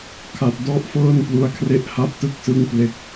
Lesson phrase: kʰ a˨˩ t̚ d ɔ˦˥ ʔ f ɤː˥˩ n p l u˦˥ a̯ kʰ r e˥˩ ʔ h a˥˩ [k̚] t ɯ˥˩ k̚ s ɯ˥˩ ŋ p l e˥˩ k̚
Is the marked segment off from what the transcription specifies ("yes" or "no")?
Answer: yes